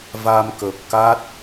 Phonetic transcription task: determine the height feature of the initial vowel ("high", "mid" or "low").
low